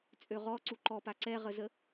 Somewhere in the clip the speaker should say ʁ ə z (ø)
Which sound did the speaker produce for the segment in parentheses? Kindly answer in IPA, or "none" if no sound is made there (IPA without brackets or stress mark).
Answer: ə